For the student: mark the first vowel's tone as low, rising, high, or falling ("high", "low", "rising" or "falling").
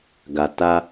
low